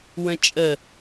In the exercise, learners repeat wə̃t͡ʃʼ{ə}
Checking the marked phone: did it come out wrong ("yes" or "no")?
no